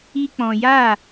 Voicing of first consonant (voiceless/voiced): voiceless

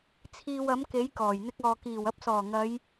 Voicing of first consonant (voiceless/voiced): voiceless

